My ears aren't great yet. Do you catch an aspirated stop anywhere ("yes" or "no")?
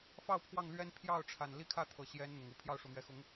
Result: yes